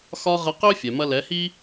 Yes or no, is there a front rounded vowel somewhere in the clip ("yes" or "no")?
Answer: yes